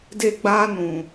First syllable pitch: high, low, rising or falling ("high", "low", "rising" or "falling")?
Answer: falling